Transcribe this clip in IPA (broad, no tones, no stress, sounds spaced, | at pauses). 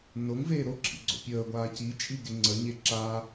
n o ŋ v eː ɾ o ǁʰ ḭ ɡ͡ǀ o̰ pʲ əː ɡʷ aː c i t͡ʃʼ i ɡ e ŋ͡ǀ ə ɲ e ǁ a